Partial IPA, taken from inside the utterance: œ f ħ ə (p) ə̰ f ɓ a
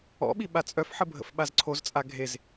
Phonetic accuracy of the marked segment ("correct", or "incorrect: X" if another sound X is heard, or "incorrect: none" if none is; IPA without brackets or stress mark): incorrect: bʱ